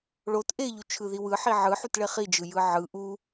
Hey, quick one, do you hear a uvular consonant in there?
yes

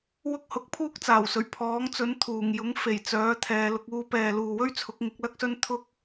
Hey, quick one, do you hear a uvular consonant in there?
no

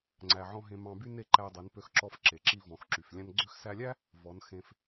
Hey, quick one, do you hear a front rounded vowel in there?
yes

